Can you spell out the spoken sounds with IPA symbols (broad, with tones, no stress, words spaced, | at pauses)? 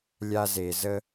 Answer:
lʲa˦ze˨ zə˦